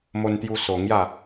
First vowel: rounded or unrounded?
rounded